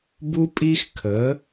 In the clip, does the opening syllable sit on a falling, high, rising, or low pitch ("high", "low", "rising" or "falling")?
high